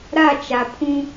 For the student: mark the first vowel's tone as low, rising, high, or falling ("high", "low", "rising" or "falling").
falling